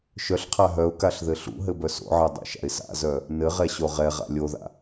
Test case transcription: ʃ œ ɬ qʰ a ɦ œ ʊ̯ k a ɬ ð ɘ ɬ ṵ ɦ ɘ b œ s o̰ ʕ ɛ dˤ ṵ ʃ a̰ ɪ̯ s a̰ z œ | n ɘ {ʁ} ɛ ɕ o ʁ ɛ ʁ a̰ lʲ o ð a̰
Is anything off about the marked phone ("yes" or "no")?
no